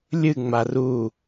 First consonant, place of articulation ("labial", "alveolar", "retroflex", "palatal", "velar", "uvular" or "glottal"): alveolar